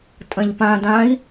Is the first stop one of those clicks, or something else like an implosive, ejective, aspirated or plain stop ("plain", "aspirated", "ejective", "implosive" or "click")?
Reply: ejective